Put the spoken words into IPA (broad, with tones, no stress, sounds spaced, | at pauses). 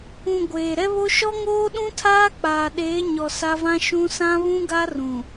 ũ˨ ɡʷ eː˨ ɾ ɛ˦ β o˦ ʃ ɔ˦ ŋ oː˦ ɗ ũ˦ tʰ aː˦ k͡p aː˨ ɗ eː˨˦ ɲ ɔ˨ s a˦ v ã˦ ʃ ũ˦ s ã˦ β ũ˦ ɡ a˦ r ũ˨